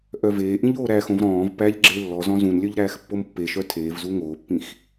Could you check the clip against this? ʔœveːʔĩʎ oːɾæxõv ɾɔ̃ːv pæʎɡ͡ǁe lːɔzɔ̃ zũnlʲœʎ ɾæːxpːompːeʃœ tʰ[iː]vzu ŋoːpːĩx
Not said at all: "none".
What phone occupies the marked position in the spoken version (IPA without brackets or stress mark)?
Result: eː